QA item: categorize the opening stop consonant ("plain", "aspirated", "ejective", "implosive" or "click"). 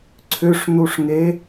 click